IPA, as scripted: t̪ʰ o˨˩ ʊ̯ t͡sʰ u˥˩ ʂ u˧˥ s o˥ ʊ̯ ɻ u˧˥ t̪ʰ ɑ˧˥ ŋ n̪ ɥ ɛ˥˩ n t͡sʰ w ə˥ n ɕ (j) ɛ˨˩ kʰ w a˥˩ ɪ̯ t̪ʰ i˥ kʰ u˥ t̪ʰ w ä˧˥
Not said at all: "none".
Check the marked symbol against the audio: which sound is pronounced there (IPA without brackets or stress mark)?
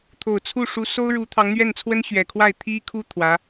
ɥ